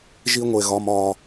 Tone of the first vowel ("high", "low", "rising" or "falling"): high